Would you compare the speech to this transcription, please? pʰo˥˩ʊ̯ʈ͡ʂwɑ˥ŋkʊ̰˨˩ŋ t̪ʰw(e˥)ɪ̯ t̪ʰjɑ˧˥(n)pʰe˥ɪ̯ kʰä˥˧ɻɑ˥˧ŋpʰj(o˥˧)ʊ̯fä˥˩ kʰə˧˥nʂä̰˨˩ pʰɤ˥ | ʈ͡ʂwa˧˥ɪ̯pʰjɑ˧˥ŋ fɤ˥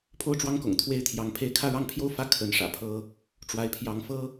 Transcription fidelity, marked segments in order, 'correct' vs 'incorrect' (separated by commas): correct, incorrect, correct